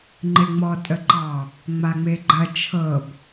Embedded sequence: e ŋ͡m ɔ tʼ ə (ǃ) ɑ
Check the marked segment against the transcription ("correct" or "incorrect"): correct